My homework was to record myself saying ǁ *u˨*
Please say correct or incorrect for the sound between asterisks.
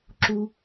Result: correct